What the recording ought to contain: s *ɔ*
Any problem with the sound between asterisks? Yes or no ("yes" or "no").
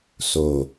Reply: yes